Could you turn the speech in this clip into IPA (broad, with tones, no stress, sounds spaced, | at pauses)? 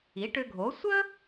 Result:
i˩˥ ʈ ʏ˧ ɡʱ o˩˥ sʷ ə˥